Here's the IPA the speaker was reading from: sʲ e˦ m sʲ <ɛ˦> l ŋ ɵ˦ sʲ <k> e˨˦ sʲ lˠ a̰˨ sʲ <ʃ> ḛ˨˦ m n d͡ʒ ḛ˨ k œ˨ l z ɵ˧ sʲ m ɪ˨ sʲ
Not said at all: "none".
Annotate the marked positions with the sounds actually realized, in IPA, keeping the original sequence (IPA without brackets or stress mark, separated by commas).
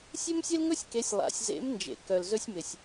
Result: e˦, k, z